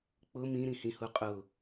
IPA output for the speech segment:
k͡pʊ mĩɾĩhĩhu qʼʊ

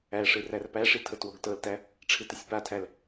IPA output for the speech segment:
æʂɨ rærpæʂi tʰɤtwoɡtɤltæ | ʈ͡ʂʰɨtɨsʲpatʰæl

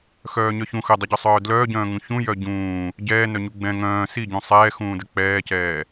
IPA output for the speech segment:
xœːɲœçũ xədˤəɟœsˤœː dlœːɟœ̃ːŋũ çũjœ ɟũː | ɟɛːnœɲu ɡ͡bɛ̃ ŋœ̃ː siɟũ sˤɛː xũːdək͡pɛːcɛː

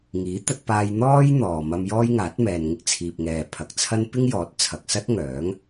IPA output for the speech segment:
ŋiː˨˥t̪ɐ˧t̚paː˧j n̪ɔː˥j n̪ɔː˨mɐ˧m jɔː˥jŋaː˨˥t̚mɛː˨nŋɪ˥k̚ t͡sʰiː˨p̚ŋɛː˨ pʰɐ˨k̚t͡sʰɐ˥n pɪ˥ŋjɔː˨˥t̚t͡sʰɐ˨k̚sɐ˥t̚ ŋœː˨˥ŋ

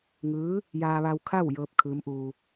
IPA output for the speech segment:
ŋɯː˧˥ | jaː˧ʋa˧w kʰa˥˨wjɤː˧p̚ kʰɯː˧˥mʔuː˧

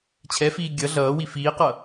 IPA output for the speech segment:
t͡ɕʰɛfiː ɡʲʌ ɮʌːwi fiːqʌ

